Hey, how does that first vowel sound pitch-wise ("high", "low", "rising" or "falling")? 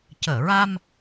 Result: low